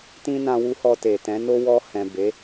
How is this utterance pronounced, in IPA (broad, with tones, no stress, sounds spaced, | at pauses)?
t ĩ˦ n ã˧ w u˧ h ɔ˧ t e˨ t ɛ̃˨˦ n o˦ w ɔ˧ h ɛ̃˨ b e˨˦